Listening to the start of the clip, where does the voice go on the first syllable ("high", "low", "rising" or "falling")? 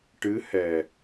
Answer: rising